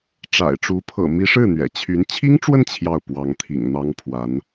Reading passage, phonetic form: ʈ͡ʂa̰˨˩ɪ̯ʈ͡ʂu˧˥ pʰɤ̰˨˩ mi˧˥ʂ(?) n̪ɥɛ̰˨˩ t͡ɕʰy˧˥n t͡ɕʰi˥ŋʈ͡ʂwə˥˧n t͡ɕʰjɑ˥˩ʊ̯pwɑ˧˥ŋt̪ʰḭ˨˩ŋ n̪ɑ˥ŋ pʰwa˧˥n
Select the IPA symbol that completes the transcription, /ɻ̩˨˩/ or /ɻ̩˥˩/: ɻ̩˥˩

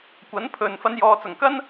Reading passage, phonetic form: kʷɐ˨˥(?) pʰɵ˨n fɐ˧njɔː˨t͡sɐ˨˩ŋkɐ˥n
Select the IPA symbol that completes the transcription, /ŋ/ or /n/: n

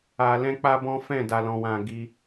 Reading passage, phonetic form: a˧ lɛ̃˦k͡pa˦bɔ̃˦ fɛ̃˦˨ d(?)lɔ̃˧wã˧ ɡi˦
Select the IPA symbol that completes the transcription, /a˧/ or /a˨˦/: a˧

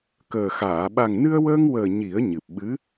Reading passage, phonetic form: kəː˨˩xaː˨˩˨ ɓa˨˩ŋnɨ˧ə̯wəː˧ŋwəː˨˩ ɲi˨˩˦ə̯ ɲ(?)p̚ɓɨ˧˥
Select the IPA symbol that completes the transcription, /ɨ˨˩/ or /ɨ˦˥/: ɨ˨˩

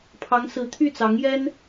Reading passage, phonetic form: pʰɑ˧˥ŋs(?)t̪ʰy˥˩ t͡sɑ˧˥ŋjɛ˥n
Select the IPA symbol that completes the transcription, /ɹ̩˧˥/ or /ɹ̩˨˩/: ɹ̩˧˥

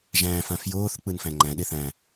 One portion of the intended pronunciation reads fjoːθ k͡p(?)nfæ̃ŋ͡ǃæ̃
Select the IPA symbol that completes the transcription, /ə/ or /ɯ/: ɯ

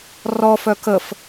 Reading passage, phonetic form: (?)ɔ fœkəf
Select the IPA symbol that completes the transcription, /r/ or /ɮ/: r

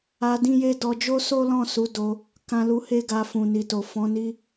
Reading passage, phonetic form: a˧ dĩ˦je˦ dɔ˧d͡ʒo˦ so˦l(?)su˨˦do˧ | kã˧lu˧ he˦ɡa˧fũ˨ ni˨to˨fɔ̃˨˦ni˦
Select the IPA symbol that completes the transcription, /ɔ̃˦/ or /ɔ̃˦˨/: ɔ̃˦˨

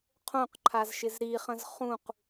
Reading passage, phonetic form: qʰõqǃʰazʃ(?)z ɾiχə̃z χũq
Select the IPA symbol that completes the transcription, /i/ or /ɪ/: ɪ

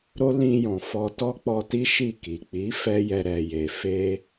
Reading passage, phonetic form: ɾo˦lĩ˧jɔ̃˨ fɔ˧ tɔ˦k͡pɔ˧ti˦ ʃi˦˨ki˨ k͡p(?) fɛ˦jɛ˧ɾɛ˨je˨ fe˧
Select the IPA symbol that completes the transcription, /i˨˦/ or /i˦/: i˨˦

